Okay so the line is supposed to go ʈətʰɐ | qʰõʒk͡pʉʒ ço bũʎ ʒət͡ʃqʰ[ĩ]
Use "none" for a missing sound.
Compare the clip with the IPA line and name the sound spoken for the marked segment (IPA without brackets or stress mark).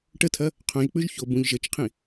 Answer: ĩ